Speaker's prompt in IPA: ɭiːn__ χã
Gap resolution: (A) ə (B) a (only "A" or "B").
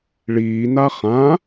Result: B